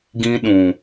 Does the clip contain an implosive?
yes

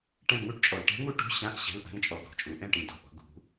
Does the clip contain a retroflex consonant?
yes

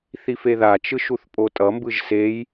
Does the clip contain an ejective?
yes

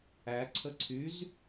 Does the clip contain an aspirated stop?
yes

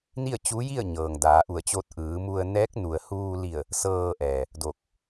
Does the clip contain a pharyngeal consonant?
no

